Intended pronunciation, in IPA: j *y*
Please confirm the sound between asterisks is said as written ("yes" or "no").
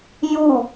no